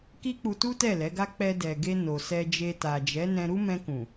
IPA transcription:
ki˦k͡pu˧tu˦tɛ˦˨ lɛ˨˦ɡa˦ k͡pɛ˧dɛ˨ɡe˧ no˨sɛ˧d͡ʒe˧ ta˨d͡ʒɛ˨˦ nɛ̃˧ɾu˦ mɛ̃˧kũ˨

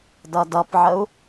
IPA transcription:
dʌdʌpʕəu̯

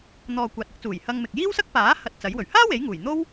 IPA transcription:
n̪ɔː˨ kʷaː˨t̚ɪ˨˥k̚t͡suː˨˩j hɐ˧ŋmɪ˨k̚ jiː˥wsɐ˥k̚ paː˨˥ hɐ˧t̚t͡sɐ˨˥jwɵ˨˩ɥ haː˥ we˨˥jŋuː˨˩jn̪o˥w

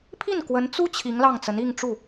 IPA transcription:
pʰi˥˩n kwə˧˥n t͡su˥ t͡ɕʰi˧˥ŋlɑ˥˩ŋ t͡sə˧˥ni˥˧ŋʈ͡ʂu˥˩

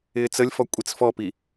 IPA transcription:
ɪːt͡səlʲfɔ kʷʼit͡sfɔpi

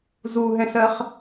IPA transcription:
zuɦɛ̃sɜχ

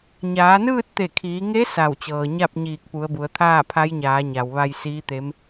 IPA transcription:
ɲaː˩˧nɯː˥˨t̚t̪e˧˩kʰiː˩˧ ŋe˧˥ sa˧˩wt͡ɕɤː˩ɲa˥˨p̚ ɲiː˧˩k̚pu˩˧ə̯bu˩˧ə̯ t̪ʰaː˥˨pʰa˧˥jɲaː˩˧ɲa˩w ʋa˧jsiː˧˥t̪e˧˥m

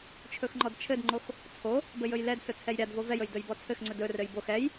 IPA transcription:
t͡ʃʰɵxŋ͡ǃɔdt͡ʃʰɘdŋ͡ǃox | t͡sʰo | bɘjɵjlɛdsɵ t͡sʰɛjɾʲadvo vɛjɵj dɵjbɔt͡sʰɘxŋ͡ǀɵ dɵrɘj box ɛj

